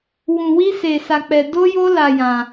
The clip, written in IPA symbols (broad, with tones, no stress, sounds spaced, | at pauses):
w ũ˧ w i˦ s e˧ s a˧ k͡p ɛ˧ d o˦ j o˦ l a˧ j ã˧